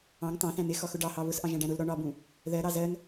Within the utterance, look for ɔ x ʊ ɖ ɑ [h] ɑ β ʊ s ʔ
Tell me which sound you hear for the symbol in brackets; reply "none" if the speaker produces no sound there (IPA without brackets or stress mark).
h